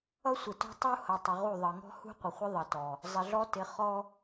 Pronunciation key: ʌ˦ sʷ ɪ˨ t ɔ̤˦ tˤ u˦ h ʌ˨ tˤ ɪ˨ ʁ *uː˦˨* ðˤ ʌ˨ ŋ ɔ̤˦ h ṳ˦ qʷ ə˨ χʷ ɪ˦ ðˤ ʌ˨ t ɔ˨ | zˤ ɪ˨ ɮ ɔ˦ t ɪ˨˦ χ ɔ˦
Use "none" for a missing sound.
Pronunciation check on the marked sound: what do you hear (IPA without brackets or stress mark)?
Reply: u˦˨